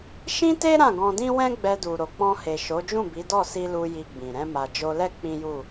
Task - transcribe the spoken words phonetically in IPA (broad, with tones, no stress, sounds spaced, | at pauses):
ʃ ĩ˦ t e˦ ɾ ã˦˨ ɡ ɔ̃˧ d ĩ˦ w ɛ̃˦ ɡ͡b ɛ˧ d u˨ ɾ o˨ k͡p ɔ̃˧ h e˨ ʃ o˨˦ d͡ʒ ũ˦˨ b i˨˦ d ɔ˦˨ s i˧ l u˧ j i˧ ɡ͡b ĩ˨ ɾ ɛ̃˧ m a˨ d͡ʒ o˧ l ɛ˦ k͡p ĩ˦ j u˦˨